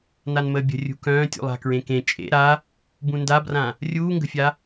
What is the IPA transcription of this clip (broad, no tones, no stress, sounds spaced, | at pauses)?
n a n m əː bʲ ə̤ rʲ ṳ k œ̃ː tʲ ṵ lˠ a̤ k ɹ ẽ k ẽ t͡ʃʼ ḛ ɾ a | b ũ n d a b r ã | rʲ uː ŋ ɡ ə̤ fʲ a